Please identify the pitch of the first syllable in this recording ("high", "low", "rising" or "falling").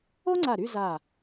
high